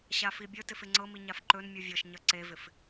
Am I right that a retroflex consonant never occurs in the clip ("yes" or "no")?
yes